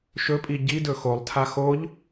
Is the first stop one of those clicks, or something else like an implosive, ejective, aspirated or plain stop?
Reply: ejective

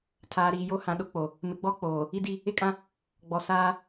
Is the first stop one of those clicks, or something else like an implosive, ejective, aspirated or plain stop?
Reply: aspirated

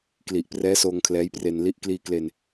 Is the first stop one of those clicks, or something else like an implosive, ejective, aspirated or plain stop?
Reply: plain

